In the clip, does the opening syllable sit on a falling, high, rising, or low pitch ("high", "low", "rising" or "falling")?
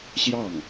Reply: falling